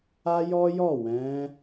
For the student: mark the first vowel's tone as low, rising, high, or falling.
high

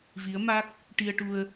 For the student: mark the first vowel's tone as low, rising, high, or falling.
rising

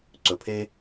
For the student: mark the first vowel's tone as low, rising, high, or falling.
low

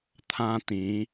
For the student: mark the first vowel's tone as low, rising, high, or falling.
high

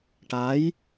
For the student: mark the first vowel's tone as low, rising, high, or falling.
rising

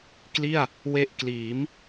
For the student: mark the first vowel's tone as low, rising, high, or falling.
falling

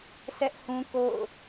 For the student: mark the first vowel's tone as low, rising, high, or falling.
high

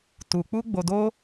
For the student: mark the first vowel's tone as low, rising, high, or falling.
high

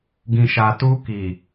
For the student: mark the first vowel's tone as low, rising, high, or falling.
low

